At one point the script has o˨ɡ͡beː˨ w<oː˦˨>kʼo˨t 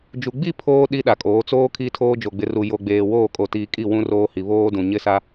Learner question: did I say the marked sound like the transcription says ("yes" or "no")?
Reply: yes